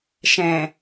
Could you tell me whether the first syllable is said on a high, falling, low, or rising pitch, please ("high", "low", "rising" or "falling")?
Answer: low